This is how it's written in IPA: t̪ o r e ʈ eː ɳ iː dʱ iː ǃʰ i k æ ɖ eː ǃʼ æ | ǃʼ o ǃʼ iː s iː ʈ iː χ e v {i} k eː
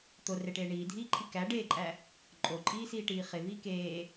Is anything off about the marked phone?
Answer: yes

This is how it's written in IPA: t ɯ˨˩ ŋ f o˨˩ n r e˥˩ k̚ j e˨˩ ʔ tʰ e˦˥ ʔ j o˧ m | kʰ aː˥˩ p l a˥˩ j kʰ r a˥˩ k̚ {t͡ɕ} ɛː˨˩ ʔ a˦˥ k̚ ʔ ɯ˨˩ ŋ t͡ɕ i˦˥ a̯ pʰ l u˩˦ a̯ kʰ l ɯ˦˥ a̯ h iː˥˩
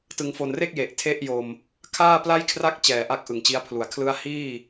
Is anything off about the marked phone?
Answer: no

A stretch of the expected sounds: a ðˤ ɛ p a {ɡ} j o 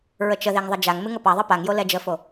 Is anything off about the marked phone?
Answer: yes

